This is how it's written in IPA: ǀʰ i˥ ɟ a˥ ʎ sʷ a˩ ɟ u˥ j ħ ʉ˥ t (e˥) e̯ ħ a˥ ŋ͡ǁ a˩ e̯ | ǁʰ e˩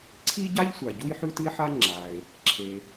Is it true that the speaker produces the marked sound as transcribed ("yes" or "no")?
no